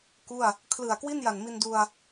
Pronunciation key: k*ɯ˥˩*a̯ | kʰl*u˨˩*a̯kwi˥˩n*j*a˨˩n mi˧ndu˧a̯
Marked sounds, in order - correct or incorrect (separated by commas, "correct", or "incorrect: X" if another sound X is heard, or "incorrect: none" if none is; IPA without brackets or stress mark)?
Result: incorrect: u˥˩, incorrect: ɯ˨˩, correct